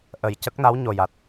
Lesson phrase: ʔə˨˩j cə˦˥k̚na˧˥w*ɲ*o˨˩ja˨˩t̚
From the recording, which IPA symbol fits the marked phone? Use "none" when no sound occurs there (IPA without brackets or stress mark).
ɲ